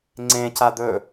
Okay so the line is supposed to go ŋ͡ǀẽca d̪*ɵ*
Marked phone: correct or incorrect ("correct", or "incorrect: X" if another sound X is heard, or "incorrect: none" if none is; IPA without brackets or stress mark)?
correct